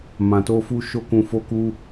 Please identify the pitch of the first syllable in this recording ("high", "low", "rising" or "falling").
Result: low